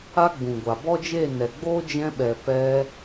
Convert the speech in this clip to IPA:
a˦ɡ͡bũ˨ɡʷa˨ bɔ˦d͡ʒeː˦˨nɛ˨ɡ͡boː˦ d͡ʒɛ̃˧ɓɛ˨ pɛ˧

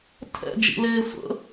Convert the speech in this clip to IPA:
tʰɛ̰d͡ʒḭleː sʷə̰

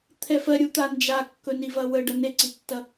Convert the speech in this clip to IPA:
t̪ʰɛfɜ ɾʲut̪and͡ʒa kːɵnivɐwə ɖɐneǀitːɐ

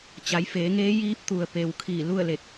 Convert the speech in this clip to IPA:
t͡ɕa˩˧jfeː˩˧ŋeː˧˥ jiː˧˥p̚t̪u˩ə̯ pe˩w kʰiː˧˩lu˥˨ə̯le˧˩k̚

